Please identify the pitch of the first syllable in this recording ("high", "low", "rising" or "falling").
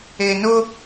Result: low